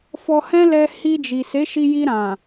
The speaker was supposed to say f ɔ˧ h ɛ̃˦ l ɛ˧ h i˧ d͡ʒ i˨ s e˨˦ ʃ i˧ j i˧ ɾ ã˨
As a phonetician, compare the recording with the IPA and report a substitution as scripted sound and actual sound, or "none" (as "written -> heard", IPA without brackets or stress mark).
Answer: none